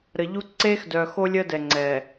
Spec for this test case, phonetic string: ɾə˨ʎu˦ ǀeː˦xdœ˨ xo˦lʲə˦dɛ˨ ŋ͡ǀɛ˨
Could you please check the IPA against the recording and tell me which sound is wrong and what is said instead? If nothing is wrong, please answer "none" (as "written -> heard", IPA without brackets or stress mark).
none